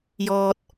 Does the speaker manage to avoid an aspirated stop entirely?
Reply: yes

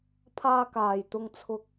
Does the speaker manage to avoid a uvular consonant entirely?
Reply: yes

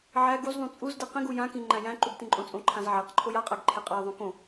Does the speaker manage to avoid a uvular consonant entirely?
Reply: no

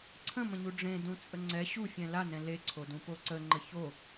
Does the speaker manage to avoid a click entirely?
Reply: no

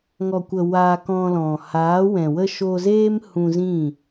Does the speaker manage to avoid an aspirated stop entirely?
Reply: yes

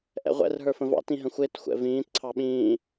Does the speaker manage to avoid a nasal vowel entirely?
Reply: no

